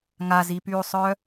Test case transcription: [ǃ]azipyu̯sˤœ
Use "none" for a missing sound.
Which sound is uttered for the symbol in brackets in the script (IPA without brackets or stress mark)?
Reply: ŋ